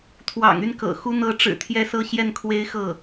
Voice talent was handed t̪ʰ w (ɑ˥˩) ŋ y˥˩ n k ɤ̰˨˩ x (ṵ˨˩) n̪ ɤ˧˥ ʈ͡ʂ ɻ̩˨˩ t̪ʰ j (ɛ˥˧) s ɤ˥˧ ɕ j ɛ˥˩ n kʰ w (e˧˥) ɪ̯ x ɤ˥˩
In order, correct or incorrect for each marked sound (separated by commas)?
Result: incorrect, incorrect, correct, incorrect